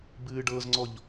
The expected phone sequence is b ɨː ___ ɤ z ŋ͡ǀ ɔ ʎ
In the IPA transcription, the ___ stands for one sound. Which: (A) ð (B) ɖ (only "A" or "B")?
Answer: B